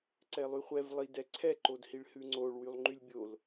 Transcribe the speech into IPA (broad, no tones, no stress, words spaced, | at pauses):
ǀɛlˠyχʷɛv lˠid ɛǀʰɛǃodhiɭ hʉŋ͡ǀoɭ wylˠŋ͡ǃylʲbʲol